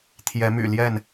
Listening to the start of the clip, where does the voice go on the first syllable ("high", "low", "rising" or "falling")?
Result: rising